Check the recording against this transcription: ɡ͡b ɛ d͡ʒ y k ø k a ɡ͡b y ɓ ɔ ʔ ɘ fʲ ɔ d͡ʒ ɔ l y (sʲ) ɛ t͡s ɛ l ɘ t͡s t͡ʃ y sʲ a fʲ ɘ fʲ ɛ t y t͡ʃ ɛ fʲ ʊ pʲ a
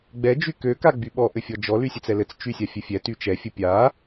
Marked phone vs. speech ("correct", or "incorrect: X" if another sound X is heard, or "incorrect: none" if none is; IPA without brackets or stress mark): correct